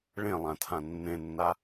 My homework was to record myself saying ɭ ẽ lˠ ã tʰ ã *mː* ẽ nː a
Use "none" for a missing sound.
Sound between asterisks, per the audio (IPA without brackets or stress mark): nː